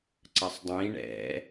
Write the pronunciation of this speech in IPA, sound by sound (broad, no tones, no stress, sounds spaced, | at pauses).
ǀ ɐ sˤ dˤ ĩ ɳ ɛ̰